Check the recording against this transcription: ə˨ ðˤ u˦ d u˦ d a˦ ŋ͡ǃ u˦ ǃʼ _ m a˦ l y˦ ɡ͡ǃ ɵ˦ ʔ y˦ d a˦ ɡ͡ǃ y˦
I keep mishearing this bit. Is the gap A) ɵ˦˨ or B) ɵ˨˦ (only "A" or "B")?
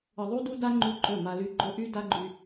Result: A